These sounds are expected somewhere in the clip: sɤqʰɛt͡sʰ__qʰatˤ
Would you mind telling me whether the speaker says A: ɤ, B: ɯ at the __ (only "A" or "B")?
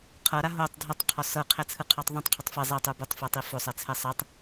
B